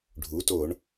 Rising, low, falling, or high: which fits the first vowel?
rising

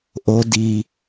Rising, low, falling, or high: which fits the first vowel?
low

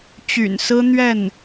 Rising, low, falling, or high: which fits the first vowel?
low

